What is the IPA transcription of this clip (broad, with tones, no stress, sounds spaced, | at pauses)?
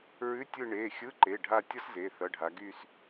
ɹ ʉ˧˥˧ tʲ ɯ˦˨ ɳ e˩˧˩ xʲ ɯ˧˥˧ ǃ e˩˧˩ ɖʱ a˦˨ tʲ ʌ˥ s z e˩˧˩ θ ʌ˩˧˩ ɖʱ a˩˧ ɡ y˦˨ s